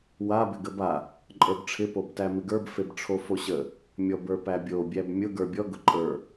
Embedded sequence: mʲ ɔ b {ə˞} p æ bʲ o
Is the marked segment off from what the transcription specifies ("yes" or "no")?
no